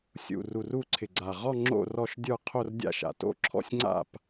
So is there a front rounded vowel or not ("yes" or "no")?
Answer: no